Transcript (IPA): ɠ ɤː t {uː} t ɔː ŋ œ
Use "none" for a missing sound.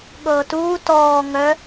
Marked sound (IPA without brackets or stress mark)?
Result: uː